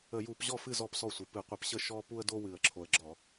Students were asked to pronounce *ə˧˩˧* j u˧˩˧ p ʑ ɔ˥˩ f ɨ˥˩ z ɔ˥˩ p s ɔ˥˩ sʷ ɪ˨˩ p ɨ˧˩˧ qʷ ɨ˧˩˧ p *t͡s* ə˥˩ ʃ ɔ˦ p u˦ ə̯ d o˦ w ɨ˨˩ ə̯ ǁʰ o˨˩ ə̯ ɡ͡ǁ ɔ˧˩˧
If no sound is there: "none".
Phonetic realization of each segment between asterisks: ə˧˩˧, ɕ

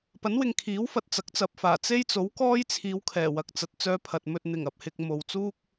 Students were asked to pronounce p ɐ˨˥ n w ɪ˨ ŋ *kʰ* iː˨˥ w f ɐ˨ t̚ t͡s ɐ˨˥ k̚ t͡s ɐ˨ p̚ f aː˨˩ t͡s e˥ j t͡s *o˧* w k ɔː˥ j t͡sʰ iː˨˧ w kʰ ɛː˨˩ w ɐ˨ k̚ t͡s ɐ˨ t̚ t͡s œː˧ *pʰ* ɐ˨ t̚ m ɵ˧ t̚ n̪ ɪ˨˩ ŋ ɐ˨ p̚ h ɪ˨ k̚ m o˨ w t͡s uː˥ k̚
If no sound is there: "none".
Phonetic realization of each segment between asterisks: kʰ, o˨˥, pʰ

